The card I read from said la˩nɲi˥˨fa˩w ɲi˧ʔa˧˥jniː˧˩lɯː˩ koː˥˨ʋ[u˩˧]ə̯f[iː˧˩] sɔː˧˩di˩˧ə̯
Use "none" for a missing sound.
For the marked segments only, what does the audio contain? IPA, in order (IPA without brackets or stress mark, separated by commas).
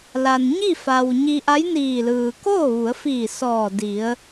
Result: u˩˧, iː˧˩